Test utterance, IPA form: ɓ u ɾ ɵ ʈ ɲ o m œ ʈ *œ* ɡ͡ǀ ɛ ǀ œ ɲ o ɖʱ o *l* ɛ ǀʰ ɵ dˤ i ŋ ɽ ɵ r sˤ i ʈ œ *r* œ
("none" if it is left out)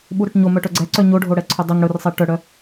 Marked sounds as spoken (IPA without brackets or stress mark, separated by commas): œ, ɽ, ɽ